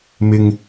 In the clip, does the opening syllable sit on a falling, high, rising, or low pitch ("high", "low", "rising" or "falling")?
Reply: low